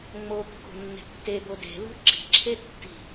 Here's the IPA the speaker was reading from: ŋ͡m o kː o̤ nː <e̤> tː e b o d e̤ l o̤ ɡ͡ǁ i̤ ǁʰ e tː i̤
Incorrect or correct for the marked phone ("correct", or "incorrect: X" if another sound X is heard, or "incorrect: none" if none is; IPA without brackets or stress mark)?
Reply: correct